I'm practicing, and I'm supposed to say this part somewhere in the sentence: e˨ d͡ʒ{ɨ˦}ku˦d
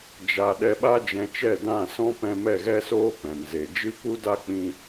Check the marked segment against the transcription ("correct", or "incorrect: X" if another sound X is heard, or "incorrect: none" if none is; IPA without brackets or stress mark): correct